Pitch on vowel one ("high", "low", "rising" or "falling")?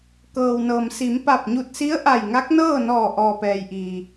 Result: low